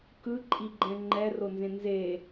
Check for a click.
present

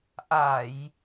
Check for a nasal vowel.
absent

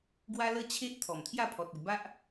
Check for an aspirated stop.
present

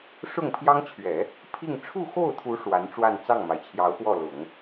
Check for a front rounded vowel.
absent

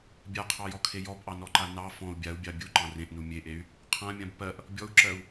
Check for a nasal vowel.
present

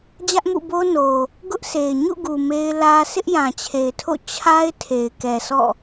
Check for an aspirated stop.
present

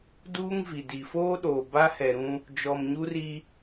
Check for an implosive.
present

